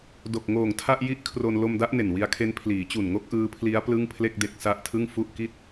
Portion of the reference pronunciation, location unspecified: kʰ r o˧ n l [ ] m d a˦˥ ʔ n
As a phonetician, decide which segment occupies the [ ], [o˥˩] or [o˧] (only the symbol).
o˧